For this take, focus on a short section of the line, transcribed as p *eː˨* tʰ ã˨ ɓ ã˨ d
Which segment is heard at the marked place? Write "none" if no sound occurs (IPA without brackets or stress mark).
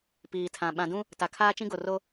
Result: iː˨